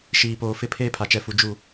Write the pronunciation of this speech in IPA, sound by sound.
ʃ iː˨ p oː˨ f ɪ˦˨ pʰ eː˦ pʰ a˨ t͡ʃ ɛ˨ f u˨ d͡ʒ u˦˨

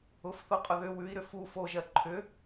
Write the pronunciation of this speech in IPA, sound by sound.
ʊ f θ o qʼ ʊ ð ʏ w ʉ i̯ ɾ ʏ f u f o ʒ ɜ ǃʰ ʏ

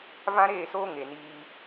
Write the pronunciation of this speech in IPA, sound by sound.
v ã˦ ɾ eː˦˨ s oː˦ ŋ e˨ n iː˧

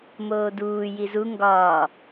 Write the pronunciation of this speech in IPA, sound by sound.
m oː d uː j i z u ŋ ɡ ɒː

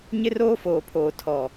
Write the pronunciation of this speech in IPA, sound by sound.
ɲ ɪ˦ r oː˦ f oː˨ pʰ oː˨ tʰ ɔ˨

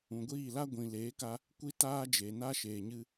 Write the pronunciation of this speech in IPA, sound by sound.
ũ˨ ɡʷ iː˦˨ l a˦ ɡʷ ĩ˨ l eː˨˦ k a˧ | kʷ i˦ t aː˦ d͡ʒ eː˨ n a˦ ʃ eː˨ ɲ ɨ˧

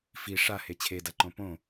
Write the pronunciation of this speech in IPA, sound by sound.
f i ʂ a h e t͡ɕʰ e d a ǃ õ p õ

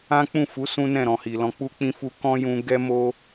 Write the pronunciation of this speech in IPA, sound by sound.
ã˦ k͡p ũ˦˨ f u˨˦ s ũ˦ n ɛ̃˦˨ ɾ ɔ̃˨ h i˨ l ɔ̃˧ k͡p u˧ k͡p ĩ˧ f u˧ k ɔ̃˦ j ũ˧ ɡ ɛ˦ m o˦

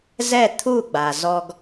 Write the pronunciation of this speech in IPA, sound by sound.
z ɛ˥˧ t̪ʰ u˥˧ ɡ͡b a˧ z ɔ˥ ɡ

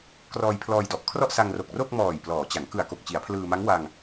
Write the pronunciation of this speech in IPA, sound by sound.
k r ɔː˧ j pʰ l ɔː˧ j d ɔ˨˩ ʔ kʰ r ɔ˥˩ ʔ s a˧ ŋ r o˨˩ k̚ r o˥˩ k̚ m ɔː˨˩ j p l ɔː˩˦ t͡ɕ a˩˦ ŋ k ɯ˨˩ a̯ k o˨˩ k̚ t͡ɕ i˩˦ a̯ pʰ l ɯː˧ m a˦˥ ŋ w a˧ ŋ

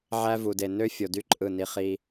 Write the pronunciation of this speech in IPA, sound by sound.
ʕ æ˦ v u˨ d e˨ n ø˦ fʲ o˨ d y˦ ǃʼ ɯ˦˨ n i˦ χ i˦

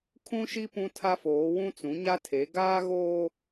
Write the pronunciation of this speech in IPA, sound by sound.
kʰ ũ˦ ʃ i˦ p ũ˦ tʰ a˦ f oː˨˦ w ũ˦ t͡s ũ˨˦ ɲ a˦ tʰ e˨˦ ɡ aː˦ ɣ oː˦

